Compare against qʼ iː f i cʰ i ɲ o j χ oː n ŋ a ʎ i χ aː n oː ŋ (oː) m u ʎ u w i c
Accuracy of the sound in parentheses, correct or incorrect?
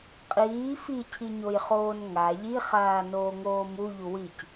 correct